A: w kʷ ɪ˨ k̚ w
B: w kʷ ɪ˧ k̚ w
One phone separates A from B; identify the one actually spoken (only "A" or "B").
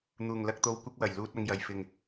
B